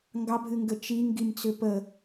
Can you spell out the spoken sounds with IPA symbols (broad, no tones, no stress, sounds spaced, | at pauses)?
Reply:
ŋ ɡ ɑ bʱ ɨ ŋ ɡ ə t͡ʃ i ŋ ɡ i m t͡s ʏ p ə